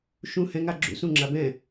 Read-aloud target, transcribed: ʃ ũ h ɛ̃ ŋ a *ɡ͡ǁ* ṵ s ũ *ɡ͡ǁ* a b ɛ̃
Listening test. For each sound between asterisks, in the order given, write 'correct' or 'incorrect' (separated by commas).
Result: correct, incorrect